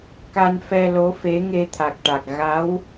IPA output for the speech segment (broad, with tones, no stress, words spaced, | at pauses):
ka˧n fɛ˧lo˧˥ fe˧˥ŋe˧t̪ʰa˨˩k̚ʈa˨˩k̚ ɣa˧˥w